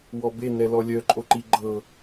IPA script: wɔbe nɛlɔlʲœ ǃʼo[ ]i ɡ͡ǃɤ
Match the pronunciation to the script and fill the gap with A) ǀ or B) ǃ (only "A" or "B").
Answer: B